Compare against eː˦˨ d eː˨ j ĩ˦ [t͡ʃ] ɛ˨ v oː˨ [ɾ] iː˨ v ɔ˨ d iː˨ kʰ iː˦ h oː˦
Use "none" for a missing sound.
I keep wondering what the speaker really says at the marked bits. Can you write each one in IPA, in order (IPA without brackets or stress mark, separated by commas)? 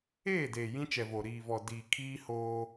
t͡ʃ, ɾ